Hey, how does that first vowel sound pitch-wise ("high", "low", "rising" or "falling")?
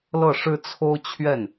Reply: falling